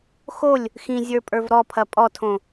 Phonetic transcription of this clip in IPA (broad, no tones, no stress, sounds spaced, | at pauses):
x o lʲ | x ĩ zʲ ə˞ pʼ ə˞ v ɾ ɔ pʰ ɐ pʼ ɔ tʰ õ